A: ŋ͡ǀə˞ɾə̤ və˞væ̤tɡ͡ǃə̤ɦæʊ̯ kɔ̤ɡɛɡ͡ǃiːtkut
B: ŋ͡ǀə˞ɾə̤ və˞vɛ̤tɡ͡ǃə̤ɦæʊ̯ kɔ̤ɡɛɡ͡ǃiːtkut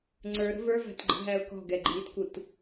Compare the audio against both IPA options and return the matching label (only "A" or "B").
A